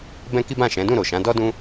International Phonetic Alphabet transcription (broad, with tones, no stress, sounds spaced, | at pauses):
b ɛ̃˦ k i˦ b ã˦˨ ʃ ɛ̃˨˦ d ũ˦˨ ɾ o˨ ʃ ã˨˦ d ɔ˦ d ũ˦